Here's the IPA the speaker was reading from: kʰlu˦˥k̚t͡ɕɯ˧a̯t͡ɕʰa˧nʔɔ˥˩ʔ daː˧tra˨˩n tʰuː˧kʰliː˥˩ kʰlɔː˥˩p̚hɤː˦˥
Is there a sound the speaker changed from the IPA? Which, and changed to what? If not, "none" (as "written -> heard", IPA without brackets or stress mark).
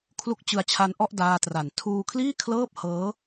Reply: ɔː˥˩ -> ɤː˥˩